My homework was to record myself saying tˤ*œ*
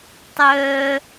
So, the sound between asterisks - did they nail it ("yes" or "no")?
yes